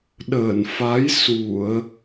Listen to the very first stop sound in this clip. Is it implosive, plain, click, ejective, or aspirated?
implosive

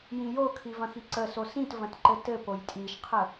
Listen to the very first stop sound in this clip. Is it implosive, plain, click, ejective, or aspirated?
aspirated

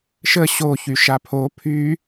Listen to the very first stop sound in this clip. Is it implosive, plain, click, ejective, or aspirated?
aspirated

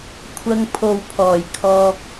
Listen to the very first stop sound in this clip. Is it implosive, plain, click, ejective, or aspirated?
aspirated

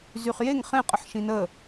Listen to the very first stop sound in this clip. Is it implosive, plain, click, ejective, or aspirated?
ejective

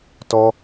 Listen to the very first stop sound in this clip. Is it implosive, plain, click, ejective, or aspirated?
plain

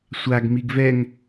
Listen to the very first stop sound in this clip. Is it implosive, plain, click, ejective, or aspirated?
plain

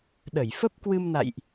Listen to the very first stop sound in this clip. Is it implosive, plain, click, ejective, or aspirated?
implosive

